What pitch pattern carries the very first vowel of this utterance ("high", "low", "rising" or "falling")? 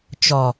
low